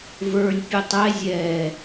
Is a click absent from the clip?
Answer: yes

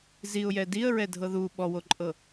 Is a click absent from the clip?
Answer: no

